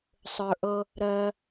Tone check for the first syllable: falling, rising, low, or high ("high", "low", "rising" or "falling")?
low